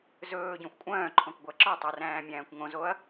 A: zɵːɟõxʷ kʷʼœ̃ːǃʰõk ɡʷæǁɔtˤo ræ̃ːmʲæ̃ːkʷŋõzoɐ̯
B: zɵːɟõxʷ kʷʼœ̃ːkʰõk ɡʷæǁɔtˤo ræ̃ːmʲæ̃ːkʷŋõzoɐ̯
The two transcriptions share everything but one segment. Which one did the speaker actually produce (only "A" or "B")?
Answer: A